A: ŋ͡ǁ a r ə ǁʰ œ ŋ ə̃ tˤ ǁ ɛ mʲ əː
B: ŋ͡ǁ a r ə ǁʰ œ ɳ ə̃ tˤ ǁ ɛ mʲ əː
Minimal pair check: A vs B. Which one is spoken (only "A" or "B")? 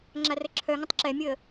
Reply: A